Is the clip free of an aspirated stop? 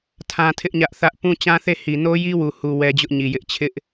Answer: no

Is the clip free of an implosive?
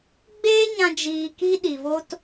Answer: no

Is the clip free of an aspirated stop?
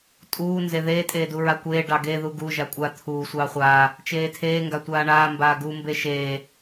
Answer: no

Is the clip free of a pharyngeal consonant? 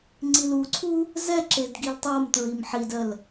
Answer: no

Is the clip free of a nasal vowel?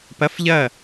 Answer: yes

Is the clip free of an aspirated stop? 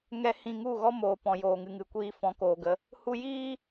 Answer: yes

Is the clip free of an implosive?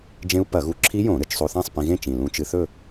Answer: yes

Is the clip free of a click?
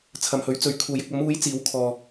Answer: yes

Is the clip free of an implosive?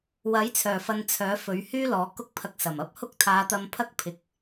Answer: yes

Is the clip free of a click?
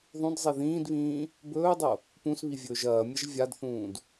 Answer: yes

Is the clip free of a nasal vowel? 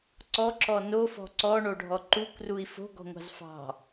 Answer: yes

